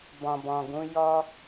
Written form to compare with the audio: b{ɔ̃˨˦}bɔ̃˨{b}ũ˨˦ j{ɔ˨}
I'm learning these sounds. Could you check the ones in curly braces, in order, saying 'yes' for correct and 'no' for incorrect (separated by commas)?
no, no, no